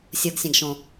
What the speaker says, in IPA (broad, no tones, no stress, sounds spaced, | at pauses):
sʲ ɤ ɡ sʲ ã ɡ ʃ õ